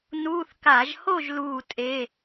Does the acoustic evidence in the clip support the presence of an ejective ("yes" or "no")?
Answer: yes